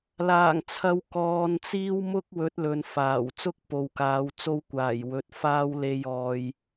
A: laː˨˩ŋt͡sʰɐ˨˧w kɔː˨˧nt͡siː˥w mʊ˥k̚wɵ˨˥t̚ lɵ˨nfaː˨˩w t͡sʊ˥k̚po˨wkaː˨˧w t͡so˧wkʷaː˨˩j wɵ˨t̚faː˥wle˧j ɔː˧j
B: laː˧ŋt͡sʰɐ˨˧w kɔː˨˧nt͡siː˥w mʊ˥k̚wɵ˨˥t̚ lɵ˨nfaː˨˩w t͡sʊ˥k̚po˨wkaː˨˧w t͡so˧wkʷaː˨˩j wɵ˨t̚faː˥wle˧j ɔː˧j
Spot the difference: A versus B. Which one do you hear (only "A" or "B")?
A